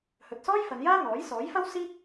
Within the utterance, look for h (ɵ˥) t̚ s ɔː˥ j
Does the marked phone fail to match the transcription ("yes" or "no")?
yes